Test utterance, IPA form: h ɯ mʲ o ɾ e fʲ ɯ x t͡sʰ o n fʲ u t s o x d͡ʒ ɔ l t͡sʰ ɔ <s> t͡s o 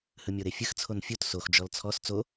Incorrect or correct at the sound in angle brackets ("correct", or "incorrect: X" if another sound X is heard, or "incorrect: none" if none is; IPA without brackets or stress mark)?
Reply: correct